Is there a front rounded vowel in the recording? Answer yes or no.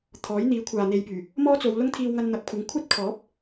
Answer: yes